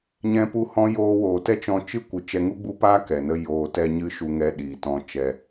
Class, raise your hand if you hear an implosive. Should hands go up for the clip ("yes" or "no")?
yes